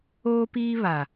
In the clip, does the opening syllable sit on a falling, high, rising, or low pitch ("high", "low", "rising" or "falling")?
high